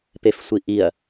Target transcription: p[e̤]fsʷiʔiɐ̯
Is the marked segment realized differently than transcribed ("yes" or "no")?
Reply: yes